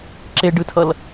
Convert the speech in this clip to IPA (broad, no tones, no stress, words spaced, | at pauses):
ǁeɖɯtʰʌl